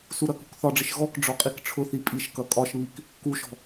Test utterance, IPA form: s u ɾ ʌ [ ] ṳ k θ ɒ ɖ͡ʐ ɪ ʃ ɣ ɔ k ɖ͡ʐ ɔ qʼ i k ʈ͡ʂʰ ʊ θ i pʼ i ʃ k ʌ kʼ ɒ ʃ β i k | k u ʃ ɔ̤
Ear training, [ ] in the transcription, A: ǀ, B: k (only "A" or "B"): B